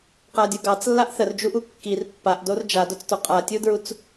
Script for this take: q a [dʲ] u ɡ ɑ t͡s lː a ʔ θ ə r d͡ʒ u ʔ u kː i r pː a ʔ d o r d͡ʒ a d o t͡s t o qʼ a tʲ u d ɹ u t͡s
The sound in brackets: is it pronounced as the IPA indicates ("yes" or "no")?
yes